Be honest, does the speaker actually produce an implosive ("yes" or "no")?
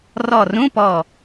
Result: no